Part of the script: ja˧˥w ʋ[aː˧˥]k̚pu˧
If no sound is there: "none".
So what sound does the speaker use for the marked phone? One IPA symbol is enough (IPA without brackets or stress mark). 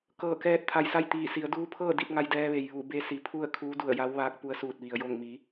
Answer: aː˧˥